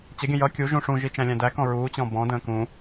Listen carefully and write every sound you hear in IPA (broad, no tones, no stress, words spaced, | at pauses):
t͡ɕəɡʲə̃ jʌ kʲuʒũ ʂũʒi t͡ʃæ̃lʲæ̃dækɔ̃ ɹuːt͡ɕɔ̃ bɔ̃də̃ː kũ